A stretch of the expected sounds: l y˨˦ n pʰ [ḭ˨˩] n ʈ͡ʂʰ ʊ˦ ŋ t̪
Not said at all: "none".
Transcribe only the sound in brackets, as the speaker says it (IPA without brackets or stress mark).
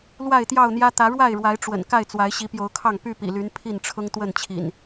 i˥˨